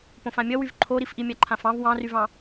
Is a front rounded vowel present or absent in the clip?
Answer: present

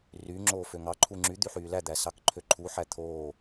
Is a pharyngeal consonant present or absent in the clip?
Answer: present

